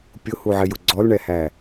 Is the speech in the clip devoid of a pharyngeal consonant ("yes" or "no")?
no